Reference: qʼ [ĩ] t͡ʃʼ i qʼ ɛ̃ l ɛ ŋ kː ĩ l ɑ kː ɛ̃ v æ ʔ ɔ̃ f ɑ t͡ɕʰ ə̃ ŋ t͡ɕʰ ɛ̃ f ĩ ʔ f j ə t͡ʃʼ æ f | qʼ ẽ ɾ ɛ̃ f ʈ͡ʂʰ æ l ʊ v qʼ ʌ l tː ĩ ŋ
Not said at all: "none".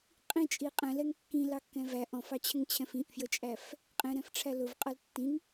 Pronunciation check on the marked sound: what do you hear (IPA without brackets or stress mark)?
ĩ